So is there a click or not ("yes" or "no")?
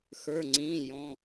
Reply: yes